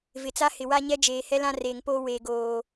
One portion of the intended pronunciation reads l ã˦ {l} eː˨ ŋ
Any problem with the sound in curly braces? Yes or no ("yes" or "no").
yes